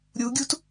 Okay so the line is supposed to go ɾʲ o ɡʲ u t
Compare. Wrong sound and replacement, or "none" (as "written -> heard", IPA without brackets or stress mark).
o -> u